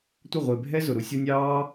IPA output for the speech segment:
tʷ ə˦˨ ʁʷ ɪː˨ bʱ ɛ˦ z ʊ˨ ɾ u˦ sʲ ɔ˦ nʲ ɑː˦

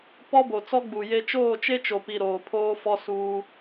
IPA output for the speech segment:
p ɔ˦ b o˨ t͡s ɔ˦ ɡ͡b u˨ j e˦ t͡ʃ oː˦˨ t͡ʃ e˦ t͡ʃ o˨ p i˨ ɾ oː˨ pʰ oː˦ f ɔ˦ s uː˦

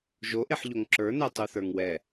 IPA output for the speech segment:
ʒ o ʔ e ħ ʎ o ŋ ǁ ə˞ n ɛ tˤ u θ ə˞ ŋ w ɛ

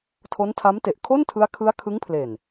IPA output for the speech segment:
tʰ o˦˥ n tʰ a˦˥ m t e˨˩ ʔ kʰ o˥˩ n tʰ ɯ˦˥ a̯ kʰ ɯ˦˥ a̯ kʰ ɯ˦˥ ŋ pʰ l e˨˩ n

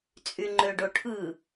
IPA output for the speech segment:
t͡sʼ y ŋ͡ǃ ø ɖ o ʈʰ ɯ

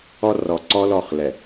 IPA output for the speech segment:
ɔ˦ r ɔ˨ ǀ ɔ˦ l ɔ˦˨ χ l ɛ˨

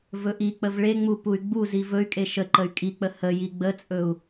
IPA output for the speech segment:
v ɵ ʔ i k͡p ə v ɭ e ŋ͡m u p u y̯ ɡ͡b u z i v ɵ y̯ kʼ e ʃ ə ǃ ə y̯ kʼ i k͡p ə h ə j i ɡ͡b ə t͡sʼ ɵ u̯

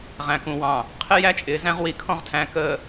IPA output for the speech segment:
ʁ æ̃˨ k ũ˨ w ɑ̃˨ | qʰ ɪ˦ j æ˦ t͡ʃʼ ɪː˨ z æ̃˦ ʁ w i˨ kʰ ɔ̃˦ ʁ tʰ æ̃˨ k əː˨

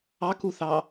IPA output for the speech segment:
ɑ k u θ ɑ

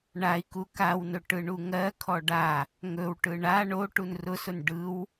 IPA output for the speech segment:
ɳ a i̯ k u k a w n ɵ ʈ ɯ ɳ u ŋ ɜ kʰ ɔ ɖ a | ŋ ɵ w ʈ ɯ ɳ a ɳ o ʈ u n r ʊ s ʊ n ɖ ɯ w

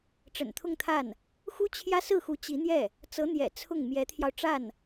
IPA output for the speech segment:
ʈ͡ʂ ə̰˨˩ n t̪ʰ ʊ˥˧ ŋ t̪ʰ a˥˩ n | x u˥ t͡ɕʰ j ä˥ s ɹ̩˥˩ x u˧˥ t͡ɕ i˧˥ n̪ j ɛ˥˩ | t͡s ɤ˧˥ n̪ j ɛ̰˨˩ t͡sʰ ʊ˥˩ ŋ m j ɛ˧˥ t̪ʰ j ɑ˧ ʊ̯ ʈ͡ʂ a˥˩ n

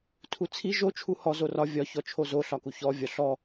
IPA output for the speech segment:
tʰ u t͡sʰ i ʒ o t͡ʃʰ u h ɔ z o r ɒ vʲ ɒ ç ɔ t͡ʃʰ o z o ɬ ɒ k u ç ɔ vʲ ɒ ɬ ɔ

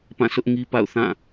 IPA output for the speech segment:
p ã˦˨ s ʊ˦ ʔ ŋ i˦ p a̰˦˨ ʊ̯ θ ã˦˨

